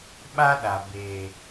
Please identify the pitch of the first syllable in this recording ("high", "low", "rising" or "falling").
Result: high